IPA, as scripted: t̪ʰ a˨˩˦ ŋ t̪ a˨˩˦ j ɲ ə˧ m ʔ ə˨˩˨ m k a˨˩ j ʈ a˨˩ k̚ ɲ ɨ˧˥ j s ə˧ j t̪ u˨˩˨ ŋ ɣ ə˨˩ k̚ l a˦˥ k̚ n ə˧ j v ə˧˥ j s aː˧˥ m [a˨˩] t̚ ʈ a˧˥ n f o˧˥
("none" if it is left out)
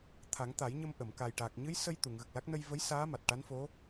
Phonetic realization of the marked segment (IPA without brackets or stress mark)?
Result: a˨˩